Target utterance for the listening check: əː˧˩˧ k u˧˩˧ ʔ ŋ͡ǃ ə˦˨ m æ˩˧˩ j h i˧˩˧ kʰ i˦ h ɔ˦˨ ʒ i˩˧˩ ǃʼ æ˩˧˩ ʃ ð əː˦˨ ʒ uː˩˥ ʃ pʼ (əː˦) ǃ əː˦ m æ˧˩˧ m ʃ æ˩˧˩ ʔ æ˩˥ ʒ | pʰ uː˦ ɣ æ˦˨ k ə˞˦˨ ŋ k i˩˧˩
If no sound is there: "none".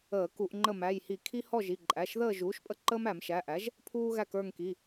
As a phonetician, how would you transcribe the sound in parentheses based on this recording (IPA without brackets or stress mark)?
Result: ə˦